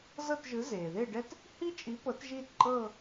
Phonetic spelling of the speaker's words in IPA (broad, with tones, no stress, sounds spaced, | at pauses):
z ɤ˥˧ t ʒ ɯ˨˥ z eː˩ ð e˥˧ ɖ ɛ˥ t | h i˥ t͡ʃʼ i˨˥ p ɤ˨˥ t ʒ iː˥˧ t ǃʼ ɤː˥˧